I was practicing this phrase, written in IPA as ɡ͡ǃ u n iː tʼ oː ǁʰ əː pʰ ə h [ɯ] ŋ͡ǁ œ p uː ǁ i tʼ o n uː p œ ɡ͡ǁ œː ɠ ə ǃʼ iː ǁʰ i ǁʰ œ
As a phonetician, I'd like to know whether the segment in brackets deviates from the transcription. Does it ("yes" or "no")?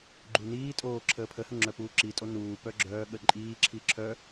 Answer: yes